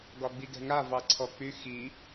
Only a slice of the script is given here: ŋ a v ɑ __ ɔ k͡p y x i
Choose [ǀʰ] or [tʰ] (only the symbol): ǀʰ